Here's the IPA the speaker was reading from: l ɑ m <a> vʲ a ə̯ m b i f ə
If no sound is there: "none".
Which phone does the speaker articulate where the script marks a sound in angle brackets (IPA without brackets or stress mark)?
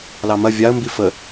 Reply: ɐ